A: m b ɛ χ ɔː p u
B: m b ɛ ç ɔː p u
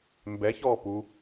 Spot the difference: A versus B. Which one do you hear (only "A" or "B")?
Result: B